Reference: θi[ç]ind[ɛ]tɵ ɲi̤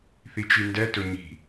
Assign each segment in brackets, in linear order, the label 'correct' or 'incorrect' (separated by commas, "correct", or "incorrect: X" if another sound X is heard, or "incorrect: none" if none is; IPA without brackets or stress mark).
incorrect: t͡ʃ, correct